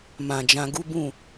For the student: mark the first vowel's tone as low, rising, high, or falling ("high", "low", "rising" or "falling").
low